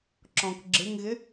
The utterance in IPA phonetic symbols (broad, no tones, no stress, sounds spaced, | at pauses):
ǁ ɔ̃ k ɡ͡ǁ ɪ ŋ ɣ ɪ